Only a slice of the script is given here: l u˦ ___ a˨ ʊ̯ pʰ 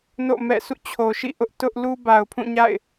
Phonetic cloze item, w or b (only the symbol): b